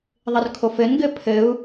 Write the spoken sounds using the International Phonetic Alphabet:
ðˤ ɘ r kʰ o f ɘ n ɡ ɘ pʰ ɘ u̯

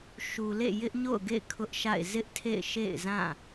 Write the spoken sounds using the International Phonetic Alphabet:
ʃ u˨ l ḛ˦˨ j ɪ˦ ʔ ɲ o̰˦˨ ʊ̯ ɡ ḛ˦˨ ɪ̯ kʰ ʊ˦ ʔ ʃ a̰˦˨ ɪ̯ z ɪ˦ ʔ tʰ ḛ˦˨ ɪ̯ ʃ ḛ˦˨ ɪ̯ z ã˦˨

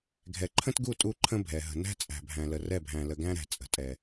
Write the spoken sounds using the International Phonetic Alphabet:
ɡʱ ɛ˨ ǃʰ ə̃˦ t ɡ u˦˨ tʼ u˦ ǃʰ ə̃˦ bʱ ɛ˨ ɦ ə̤˨ n æ̤˦ t͡sʼ æ̤˨ bʱ æ̃˨ l ə˨ r ɛ˦˨ bʱ æ̃˨ l ə˨ ɡ æ̃˦ ɾ æ̤˨ t͡sʼ ə̤˨ tʼ ɛ˨

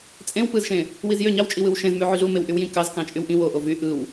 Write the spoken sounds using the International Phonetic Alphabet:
t͡sʼ ẽ w p ɯ z ʃ ẽ | w i z j ø ɲ ɑ w t͡ʃʼ i w ɯ w ʃ ẽ z m y ʕ y ɮ u m e w ʔ y w j ĩ k ɑ z k ɑ̃ t͡ʃʼ y w ʔ ĩ w o ʔ o v y ʔ ɯ w

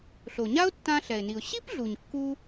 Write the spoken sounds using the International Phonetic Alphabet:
ɬ o˩ ɲ a˥ ʊ̯ tː ã˧ ɬ ɛ˩ ɪ̯ n i˩ ʊ̯ ɕ i˥ p ɮ u˩ ɲ kː u˧

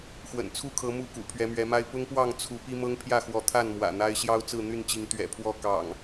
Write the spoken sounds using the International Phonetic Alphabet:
x w ə̰˨˩ n t͡sʰ u˥˨ kʰ ɤ˨˦ m u˥˨ k ṵ˨˩ pʰ ɥ ɛ˨˦ m ɥ ɛ˨˦ m a˦ ɪ̯ p ʊ˦ ŋ p w ɑ˥˨ ŋ t͡sʰ u˨˦ p i˦ m ɤ˦ ŋ pʰ j ä˥˨ x w ɔ˨˦ t̪ʰ a˥˨ n m w ä̰˨˩ n̪ a˦ ɪ̯ ɕ j ɑ˦ ʊ̯ t͡s ɹ̩˥˨ n̪ y˥˨ n t͡ɕ i˨˦ ŋ t̪ ɥ ɛ̰˨˩ pʰ w ɔ˥˨ k ɑ̰˨˩ ŋ

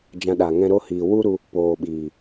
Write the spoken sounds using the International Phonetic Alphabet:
d͡ʒ ã˧ ɗ a˨ ŋ ɛ̃˦ ɾ o˦ h iː˨ w u˦ ɾ u˧ | p oː˨ ɓ iː˨

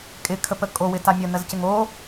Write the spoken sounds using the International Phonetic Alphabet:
kʼ ɪ kʰ ə p ə kʼ o w ɪ t a mʲ ə n ə z c ɪ ŋ o

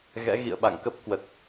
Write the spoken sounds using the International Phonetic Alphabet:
ɣ ɛ̰˧˥ ɣ ḭ˧˨ ə̯ ɓ a̰˧˨ ŋ k ə˦˥ p̚ k w ə˨˩ t̚

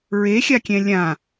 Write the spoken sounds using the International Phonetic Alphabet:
ɹ e xʲ a kʲ ɛ̃ lʲ ã

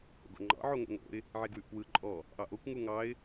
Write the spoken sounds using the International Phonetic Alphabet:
h o̰ ɡ o̰ ŋ͡ǃ ɑ̰ ʕ o ŋ o̰ ŋ o̰ ɪ̯ | ʕ e ɡ w ʉ ʔ p w ɯ ǃʼ ɔ | ʔ ɑ ʔ o kʷ ŋ u ŋ ɑ ɪ̯

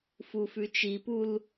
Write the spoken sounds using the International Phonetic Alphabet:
f u f ʉ t͡ʃ i p u l

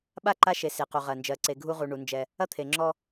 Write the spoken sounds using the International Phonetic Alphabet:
ɓ a˦˨ ǃ a˦ ʃ e˨˦ s e˨ q u˨ ʁ ɜ˨ n d͡ʒ ɜ˨ ǀ e˨ ɡʱ u˦ ʁ u˨ ɳ u˨˦ n d͡ʒ ɛ˦ | ɐ˦ t̪ʰ e˨ ŋ͡ǁ ɔ˦

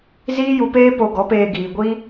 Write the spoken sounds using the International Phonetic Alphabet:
z iː˦ j u˧ p eː˦ p o˧ ɡ ɔ˨˦ p eː˧ ɡ iː˨ ɡʷ iː˦

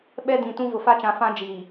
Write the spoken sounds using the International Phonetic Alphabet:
ɓ ɛ˦ d ĩ˨ t ũ˦ v ʊ˨ f a˦ t͡ʃ ã˨ f ã˦ d͡ʒ iː˨

